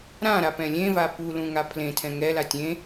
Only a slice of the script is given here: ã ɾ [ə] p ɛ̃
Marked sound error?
yes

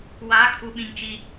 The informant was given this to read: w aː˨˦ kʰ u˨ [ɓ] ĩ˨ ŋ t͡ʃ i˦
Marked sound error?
no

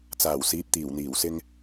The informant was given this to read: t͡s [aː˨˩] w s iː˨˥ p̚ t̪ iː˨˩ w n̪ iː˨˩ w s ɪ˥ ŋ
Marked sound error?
no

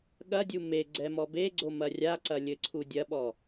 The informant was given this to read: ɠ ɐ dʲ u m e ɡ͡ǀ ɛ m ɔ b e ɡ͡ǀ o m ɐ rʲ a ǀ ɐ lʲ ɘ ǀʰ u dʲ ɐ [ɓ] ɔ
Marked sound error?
no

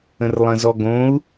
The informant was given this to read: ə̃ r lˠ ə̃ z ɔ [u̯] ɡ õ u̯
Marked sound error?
yes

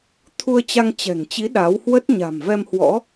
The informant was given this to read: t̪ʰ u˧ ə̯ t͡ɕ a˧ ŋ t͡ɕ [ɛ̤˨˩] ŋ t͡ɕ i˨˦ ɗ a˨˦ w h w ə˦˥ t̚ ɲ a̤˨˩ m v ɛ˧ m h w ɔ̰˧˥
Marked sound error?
no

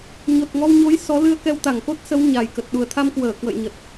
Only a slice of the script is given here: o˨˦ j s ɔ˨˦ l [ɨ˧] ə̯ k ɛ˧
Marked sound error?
no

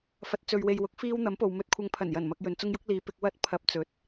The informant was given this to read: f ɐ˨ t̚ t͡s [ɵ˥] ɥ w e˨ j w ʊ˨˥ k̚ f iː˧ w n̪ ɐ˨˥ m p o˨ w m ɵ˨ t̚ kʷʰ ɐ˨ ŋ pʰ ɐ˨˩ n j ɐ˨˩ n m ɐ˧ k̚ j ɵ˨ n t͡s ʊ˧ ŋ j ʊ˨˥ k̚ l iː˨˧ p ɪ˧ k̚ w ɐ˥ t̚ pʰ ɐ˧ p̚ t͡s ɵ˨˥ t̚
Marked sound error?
yes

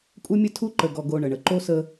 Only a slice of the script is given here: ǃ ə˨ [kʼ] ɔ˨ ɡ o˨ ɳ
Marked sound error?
yes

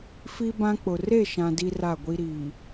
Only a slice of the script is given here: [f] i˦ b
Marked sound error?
no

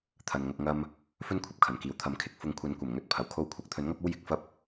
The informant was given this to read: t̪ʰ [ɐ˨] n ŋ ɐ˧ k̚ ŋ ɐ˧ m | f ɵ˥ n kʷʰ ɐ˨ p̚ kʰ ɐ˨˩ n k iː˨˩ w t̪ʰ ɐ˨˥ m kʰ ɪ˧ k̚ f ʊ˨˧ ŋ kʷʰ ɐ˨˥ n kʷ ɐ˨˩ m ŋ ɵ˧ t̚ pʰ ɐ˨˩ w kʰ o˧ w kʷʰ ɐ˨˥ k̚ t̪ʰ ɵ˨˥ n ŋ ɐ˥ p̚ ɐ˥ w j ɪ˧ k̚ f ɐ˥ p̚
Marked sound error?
no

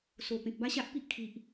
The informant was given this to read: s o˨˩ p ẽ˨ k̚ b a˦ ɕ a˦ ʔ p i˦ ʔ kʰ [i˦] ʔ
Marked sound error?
yes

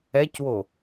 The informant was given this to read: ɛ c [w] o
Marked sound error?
no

